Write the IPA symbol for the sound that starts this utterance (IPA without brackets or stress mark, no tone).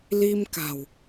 l